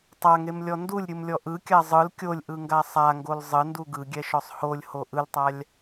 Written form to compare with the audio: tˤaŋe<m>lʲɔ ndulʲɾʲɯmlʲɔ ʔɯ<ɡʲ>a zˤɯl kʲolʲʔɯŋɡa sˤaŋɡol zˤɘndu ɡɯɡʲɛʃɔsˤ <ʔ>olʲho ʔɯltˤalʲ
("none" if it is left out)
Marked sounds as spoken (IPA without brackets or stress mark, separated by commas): m, kʲ, h